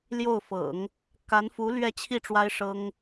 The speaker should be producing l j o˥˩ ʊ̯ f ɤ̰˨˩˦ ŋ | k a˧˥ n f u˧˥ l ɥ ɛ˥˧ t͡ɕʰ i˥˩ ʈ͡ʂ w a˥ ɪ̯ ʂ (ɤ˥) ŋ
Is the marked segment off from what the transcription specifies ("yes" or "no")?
no